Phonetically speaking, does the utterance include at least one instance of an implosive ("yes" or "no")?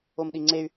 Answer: yes